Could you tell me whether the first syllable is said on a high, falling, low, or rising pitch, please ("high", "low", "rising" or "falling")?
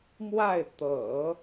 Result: falling